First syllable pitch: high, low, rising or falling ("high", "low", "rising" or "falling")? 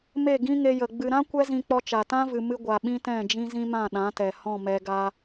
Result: falling